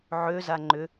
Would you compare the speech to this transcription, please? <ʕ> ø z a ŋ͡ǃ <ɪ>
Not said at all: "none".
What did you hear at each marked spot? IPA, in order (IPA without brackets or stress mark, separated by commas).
ʕ, ʏ